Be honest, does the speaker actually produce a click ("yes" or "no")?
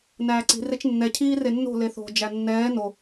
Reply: yes